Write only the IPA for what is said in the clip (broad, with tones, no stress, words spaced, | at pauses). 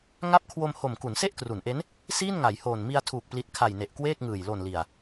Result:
ŋa˦˥p̚kʰwo˧m ho˨˩m ku˩˦nse˥˩ʔkru˩˦nʔe˦˥n | siː˥˩nŋa˩˦jhoː˨˩n mi˧a̯tʰuː˨˩k̚pli˨˩t̚ kʰa˨˩jne˨˩ʔ kweː˥˩k̚ŋɯː˨˩j lo˨˩nli˨˩a̯